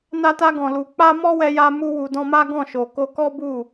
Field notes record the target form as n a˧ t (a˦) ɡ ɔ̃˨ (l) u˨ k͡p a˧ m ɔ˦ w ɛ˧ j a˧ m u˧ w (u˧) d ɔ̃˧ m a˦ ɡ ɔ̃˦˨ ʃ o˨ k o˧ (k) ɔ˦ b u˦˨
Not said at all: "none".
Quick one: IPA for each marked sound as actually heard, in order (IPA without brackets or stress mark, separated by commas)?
a˧, l, u˨, k